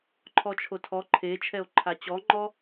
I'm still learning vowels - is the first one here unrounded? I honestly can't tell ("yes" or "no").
no